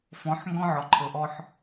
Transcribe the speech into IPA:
f ɔ̃˨˦ ħ ŋ ɡ ɔ̃˦ ʕ ɔ˨ ǃʰ ɤ˨ ʔ ɔ˦ ħ

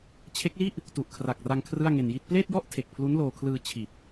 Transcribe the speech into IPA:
t͡ɕʰ e˦˥ k̚ l i˥˩ ʔ | t u˨˩ ʔ kʰ r a˨˩ k̚ r a˧ ŋ kʰ r ɯ˥˩ a̯ ŋ e˧ n j i˥˩ t̚ p l eː˥˩ t̚ j ɔ˥˩ ʔ tʰ e˨˩ k̚ pʰ l u˦˥ n l oː˧ kʰ l ɯː˧ t͡ɕʰ i˨˩ t̚

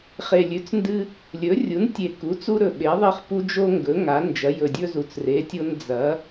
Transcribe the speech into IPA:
χ e˨˩ lʲ ʉ˩˥ t͡s n d ɨ˦ | lʲ ɵ˩˥ rʲ u˩˥ n tʲ e˨˩ k u˩˥ t͡s u˦ ɾ ɵ˨˩ ɓ e˩˥ ðˤ e˦ χ p u˦ d͡ʒ o˦ ŋ ɡ ɵ˩˥ ŋ a˩˥ n d͡ʒ ɐ˩˥ j ɵ˨˩ dʲ ɵ˦ z u˨˩ t͡s r e˩˥ tʲ o˦ n d͡z ɐ˩˥

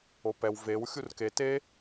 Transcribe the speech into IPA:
o p ɛ w v e w xʲ u r k e t e

